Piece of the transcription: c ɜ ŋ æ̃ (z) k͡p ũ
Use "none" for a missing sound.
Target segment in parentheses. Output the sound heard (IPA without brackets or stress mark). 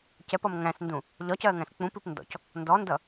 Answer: s